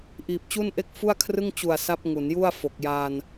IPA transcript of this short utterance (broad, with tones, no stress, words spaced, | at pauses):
ʔiː˨˩p̚t͡ɕu˥˩nʔe˥˩k̚ fu˥˩a̯kʰrɯ˥˩ŋ t͡ɕu˨˩a̯ sa˦˥p̚ ŋu˩˦nju˥˩a̯fo˨˩k̚ jaː˧n